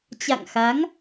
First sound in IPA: t͡ɕ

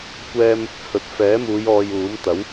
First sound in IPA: kʷ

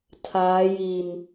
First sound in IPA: tʰ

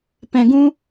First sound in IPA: p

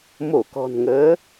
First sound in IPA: m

